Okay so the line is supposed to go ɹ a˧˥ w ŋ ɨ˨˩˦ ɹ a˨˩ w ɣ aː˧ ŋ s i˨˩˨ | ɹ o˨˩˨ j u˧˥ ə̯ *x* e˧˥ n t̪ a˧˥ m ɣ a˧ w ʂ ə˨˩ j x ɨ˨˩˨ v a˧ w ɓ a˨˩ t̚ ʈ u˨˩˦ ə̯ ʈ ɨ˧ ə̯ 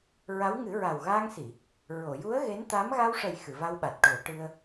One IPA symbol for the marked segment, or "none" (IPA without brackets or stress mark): ɣ